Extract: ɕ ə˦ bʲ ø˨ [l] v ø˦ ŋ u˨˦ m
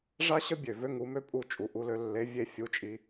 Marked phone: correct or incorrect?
incorrect: none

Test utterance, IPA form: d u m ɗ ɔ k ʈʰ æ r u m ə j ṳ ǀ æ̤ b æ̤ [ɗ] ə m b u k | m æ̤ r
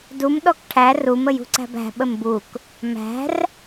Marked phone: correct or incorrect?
incorrect: ɓ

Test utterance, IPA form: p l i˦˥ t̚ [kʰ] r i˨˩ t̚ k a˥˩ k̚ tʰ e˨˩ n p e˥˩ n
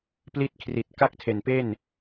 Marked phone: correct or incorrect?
correct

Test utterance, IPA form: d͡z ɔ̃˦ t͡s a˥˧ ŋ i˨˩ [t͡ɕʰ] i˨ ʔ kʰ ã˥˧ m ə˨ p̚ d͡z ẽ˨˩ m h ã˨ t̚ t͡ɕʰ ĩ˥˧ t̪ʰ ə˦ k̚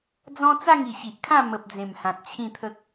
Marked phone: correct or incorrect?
incorrect: ɕ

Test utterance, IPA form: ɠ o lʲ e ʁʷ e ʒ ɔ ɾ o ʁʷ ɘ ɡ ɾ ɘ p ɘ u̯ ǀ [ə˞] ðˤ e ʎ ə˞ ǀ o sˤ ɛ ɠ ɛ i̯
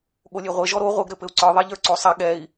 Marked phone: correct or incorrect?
correct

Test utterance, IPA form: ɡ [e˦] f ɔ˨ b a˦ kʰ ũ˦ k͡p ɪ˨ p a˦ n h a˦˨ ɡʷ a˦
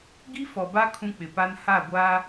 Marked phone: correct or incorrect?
incorrect: i˦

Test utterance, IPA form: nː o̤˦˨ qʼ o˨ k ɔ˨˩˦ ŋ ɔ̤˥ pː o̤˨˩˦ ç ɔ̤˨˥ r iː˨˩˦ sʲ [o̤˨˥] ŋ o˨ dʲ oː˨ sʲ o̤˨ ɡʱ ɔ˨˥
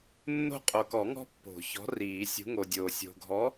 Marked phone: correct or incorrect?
incorrect: ṳ˨˥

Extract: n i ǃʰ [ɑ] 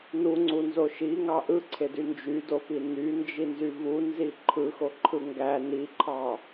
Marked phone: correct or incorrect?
correct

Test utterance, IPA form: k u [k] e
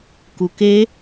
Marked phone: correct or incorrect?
correct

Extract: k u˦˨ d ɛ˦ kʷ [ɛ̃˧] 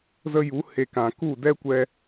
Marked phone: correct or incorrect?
incorrect: ɛ˧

